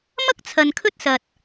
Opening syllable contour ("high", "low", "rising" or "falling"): high